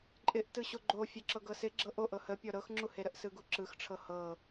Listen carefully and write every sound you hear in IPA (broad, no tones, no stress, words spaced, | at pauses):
ǃʼɪʔ tɯɕoɡ͡ǃo fʲøǁɤɡɤsɪ ɡ͡ǁɤʔo ʔɤhəpʲɔ ɾɤxŋ͡ǁuheɾəʔ sɯɡuǁɯxʈ͡ʂʰɤ hɤ